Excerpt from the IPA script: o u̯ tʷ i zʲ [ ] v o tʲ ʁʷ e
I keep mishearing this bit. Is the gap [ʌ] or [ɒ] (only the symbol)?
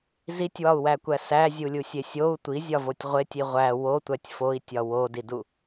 ɒ